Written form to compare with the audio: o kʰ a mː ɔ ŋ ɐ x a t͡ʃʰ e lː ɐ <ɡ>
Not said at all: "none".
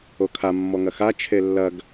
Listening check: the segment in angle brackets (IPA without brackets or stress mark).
ɡ